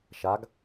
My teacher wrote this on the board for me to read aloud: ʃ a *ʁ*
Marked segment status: incorrect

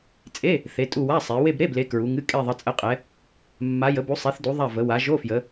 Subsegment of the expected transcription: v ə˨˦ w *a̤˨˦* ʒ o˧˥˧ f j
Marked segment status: incorrect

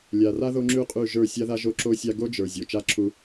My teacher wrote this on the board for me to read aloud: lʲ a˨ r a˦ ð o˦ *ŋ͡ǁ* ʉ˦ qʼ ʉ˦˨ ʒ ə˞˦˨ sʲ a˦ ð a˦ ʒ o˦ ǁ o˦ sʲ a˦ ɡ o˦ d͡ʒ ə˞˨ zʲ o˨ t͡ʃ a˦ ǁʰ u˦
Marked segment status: correct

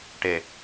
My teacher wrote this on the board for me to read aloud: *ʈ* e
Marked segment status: correct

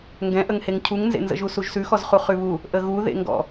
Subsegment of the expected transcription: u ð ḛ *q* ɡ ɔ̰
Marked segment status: incorrect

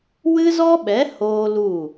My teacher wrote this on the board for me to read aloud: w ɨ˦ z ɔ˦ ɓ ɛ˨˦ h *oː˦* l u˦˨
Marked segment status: correct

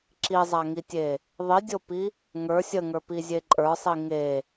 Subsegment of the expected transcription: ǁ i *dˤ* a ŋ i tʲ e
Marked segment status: incorrect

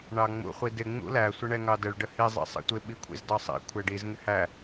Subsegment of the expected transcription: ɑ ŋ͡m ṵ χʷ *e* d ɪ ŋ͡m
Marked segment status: incorrect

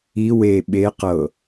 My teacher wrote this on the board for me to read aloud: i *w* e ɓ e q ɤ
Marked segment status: correct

